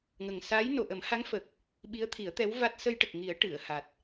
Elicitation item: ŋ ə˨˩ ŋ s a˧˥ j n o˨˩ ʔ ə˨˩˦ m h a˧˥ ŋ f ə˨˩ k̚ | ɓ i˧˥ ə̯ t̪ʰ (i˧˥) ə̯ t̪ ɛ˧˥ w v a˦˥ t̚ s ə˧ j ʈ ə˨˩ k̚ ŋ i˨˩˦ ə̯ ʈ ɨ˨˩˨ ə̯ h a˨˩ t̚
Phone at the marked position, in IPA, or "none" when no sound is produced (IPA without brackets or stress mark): i˨˩˦